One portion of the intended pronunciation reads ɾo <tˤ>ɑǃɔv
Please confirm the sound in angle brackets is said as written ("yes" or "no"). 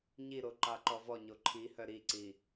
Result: no